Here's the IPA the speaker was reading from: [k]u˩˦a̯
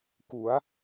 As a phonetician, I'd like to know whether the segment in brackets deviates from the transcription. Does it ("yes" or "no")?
no